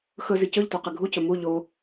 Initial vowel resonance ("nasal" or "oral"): oral